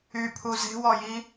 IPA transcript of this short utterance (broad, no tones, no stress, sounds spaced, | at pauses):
y pʰ u z e̤ w ɔ j i